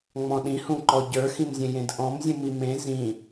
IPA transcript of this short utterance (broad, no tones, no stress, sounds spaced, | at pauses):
ŋ͡m ɔ̃ ɗ ĩ h ũ ǃ ɔ ɟ ə˞ x ĩ m zʲ ẽ j ẽ d ʔ ɔ̃ m zʲ ũ m i m ẽ z ĩ